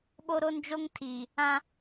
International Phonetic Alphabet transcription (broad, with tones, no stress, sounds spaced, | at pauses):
ɓ o˦ ɾ o˦ n d͡ʒ o˦ ŋ tʰ iː˨ | ã˦